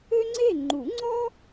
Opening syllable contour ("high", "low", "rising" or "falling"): high